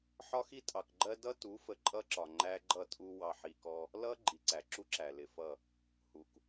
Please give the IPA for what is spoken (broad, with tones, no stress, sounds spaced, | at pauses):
ħ ɒ˦ x i˦ tʼ ɑ˨ k ɡ͡ǃ ɜ˦ d ʌ˦ t u˨˦ f ə˨ ǃʼ ʌ˦ ǁ ɒ˨ ŋ͡ǃ æ˦ ɡ͡ǃ ʌ˦˨ tʼ u˦ w ɑ˨ ħ i˨ k ɔ˦ | l ʌ˦ ɡ͡ǃ i˨ ǀ æ˨ ǁ u˦ ǁ æ˨ l ɪ˨ f ʌ˦˨ | h u˨ k